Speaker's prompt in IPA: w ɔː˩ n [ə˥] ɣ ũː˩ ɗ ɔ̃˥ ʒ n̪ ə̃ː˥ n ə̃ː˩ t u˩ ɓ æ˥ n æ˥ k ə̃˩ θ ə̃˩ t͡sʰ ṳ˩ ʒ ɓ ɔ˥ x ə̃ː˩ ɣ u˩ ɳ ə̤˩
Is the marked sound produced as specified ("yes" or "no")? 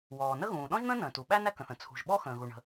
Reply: yes